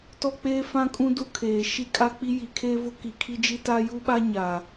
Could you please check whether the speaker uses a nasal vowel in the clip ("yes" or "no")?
yes